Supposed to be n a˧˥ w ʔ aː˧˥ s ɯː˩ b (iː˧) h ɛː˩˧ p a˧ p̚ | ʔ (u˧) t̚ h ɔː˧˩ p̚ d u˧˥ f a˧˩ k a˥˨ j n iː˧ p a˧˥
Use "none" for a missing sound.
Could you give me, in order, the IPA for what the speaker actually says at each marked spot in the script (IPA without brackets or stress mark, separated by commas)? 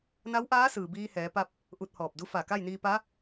iː˧, u˧